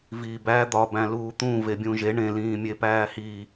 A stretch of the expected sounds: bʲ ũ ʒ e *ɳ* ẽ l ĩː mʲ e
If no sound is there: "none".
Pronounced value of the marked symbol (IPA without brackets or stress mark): ɳ